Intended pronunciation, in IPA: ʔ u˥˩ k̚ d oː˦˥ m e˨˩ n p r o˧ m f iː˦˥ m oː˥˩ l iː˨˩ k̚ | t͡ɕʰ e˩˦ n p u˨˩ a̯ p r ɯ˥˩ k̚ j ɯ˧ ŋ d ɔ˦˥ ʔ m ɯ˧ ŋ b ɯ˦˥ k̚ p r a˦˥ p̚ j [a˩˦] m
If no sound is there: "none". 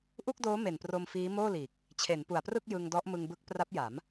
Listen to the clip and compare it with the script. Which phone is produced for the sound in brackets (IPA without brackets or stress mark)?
a˩˦